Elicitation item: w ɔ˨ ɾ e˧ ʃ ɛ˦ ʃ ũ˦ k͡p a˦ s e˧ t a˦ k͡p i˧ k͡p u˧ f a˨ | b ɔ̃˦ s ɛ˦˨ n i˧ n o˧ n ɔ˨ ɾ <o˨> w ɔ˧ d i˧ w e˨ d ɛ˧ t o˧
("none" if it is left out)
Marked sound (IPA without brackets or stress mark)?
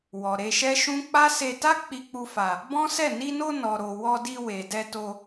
o˨